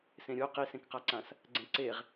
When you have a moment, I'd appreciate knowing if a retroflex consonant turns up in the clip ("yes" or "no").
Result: no